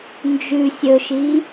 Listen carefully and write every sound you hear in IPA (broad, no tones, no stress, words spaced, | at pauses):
nd͡ʒʉ sʲɵʃi